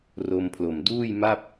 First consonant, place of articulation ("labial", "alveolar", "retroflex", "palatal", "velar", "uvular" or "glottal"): alveolar